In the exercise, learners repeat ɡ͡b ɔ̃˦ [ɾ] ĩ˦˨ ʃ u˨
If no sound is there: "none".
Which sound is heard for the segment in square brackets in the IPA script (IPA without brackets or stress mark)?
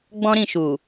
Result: ɾ